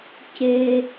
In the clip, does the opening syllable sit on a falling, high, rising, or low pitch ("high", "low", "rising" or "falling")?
low